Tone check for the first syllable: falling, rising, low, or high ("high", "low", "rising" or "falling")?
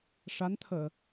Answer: rising